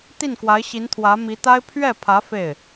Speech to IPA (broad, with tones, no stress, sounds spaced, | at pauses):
t̪ i˥˩ n k w a˧˥ ɪ̯ ɕ i˧˥ n t̪ʰ w ä˧˥ m i˧˥ t̪ a˥ ɪ̯ pʰ ɥ ɛ˥˩ pʰ ä˧˥ f e˥˩ ɪ̯